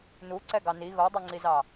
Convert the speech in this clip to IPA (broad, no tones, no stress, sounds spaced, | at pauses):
n u ǀ ɛ ɡ ɑ n i ɣ o dˤ i ŋ͡ǀ i z ɑ